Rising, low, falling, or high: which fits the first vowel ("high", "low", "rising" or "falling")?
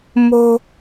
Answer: low